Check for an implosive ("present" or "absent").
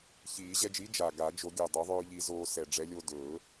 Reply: absent